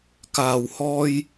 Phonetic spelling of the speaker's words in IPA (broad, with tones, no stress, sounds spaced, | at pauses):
k aː˨ w h ɔː˧ j